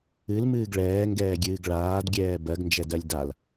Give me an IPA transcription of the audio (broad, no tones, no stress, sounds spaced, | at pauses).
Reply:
ɨ l m ɨː ɡ ɭ ɛː ŋ ɡ ɛː ɡʲ ɨː ɡ ɭ aː d ɡʲ ɛː b ɜ ɡ n d͡ʒ ɛ d ɜ lʲ d a l